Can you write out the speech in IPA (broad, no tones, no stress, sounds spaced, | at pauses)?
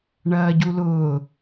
ɳ ɐː ɟ u l ʊː